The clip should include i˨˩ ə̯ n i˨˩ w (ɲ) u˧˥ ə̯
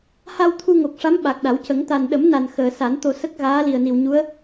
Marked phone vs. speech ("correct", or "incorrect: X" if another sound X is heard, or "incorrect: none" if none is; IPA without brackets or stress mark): correct